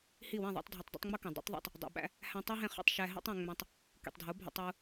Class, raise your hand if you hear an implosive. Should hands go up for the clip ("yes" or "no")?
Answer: yes